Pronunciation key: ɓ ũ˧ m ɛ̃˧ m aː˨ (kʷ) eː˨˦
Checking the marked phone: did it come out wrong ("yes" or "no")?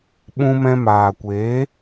no